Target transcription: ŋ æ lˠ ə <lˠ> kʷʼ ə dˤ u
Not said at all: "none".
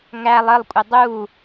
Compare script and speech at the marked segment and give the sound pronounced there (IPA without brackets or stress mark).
lˠ